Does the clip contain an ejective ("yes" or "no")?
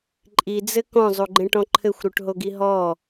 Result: yes